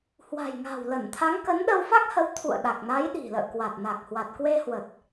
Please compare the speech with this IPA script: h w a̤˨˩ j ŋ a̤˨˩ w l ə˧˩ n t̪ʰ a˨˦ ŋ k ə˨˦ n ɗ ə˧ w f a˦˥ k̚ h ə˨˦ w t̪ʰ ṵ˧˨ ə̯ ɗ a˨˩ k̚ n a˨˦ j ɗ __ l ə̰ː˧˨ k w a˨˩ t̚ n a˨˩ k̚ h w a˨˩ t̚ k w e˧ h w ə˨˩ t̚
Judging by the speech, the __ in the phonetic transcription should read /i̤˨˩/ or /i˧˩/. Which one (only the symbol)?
i̤˨˩